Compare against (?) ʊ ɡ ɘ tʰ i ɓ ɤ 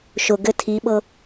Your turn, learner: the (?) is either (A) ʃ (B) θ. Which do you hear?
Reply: A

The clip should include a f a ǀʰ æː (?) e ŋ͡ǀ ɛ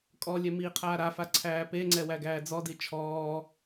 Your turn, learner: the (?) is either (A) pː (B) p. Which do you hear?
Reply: B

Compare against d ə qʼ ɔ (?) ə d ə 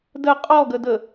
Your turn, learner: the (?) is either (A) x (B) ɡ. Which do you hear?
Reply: B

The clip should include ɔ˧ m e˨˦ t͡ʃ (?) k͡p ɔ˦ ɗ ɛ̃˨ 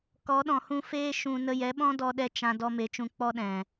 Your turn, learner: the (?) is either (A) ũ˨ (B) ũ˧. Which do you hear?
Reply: B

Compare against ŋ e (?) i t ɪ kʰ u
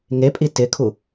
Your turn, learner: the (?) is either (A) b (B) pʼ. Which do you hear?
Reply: B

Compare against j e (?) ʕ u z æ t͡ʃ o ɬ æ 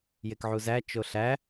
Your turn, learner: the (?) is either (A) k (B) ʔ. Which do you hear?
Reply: A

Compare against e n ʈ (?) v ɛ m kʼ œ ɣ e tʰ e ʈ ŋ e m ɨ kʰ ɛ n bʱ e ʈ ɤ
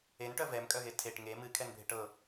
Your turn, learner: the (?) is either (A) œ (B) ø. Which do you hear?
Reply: A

